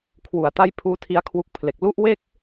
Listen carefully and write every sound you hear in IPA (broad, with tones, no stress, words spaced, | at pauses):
kʰwu˨˩a̯ta˥˩j pʰuː˦˥ tʰi˦˥a̯kʰwu˦˥k̚pʰle˨˩k̚ lu˥˩ʔwe˥˩k̚